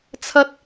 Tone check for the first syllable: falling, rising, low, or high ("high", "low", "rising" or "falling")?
high